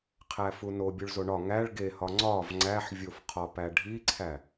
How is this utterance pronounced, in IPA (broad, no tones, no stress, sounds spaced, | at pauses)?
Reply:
qʰ æ f u n o bʲ u ɭ z o ɳ ɒ ŋ æ ɭ ɡ e h ɒ ŋ͡ǀ ɒ v ŋ͡ǀ æ ħ vʲ o f qʰ ɒ p æ ɖʱ i ǀʰ æ